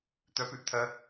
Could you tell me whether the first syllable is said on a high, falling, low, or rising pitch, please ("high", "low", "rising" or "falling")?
rising